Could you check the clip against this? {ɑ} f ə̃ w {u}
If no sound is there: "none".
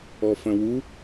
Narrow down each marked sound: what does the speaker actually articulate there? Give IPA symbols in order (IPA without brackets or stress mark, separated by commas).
ɔ, u